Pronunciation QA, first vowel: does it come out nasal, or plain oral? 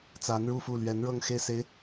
oral